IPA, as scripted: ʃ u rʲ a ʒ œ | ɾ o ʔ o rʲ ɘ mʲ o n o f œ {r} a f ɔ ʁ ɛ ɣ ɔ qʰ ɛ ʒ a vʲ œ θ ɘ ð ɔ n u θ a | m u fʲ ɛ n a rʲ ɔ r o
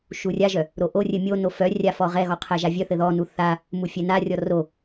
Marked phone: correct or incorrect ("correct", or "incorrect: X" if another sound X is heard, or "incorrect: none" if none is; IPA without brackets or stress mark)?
incorrect: rʲ